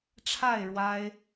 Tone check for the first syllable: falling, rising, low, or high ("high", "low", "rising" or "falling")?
falling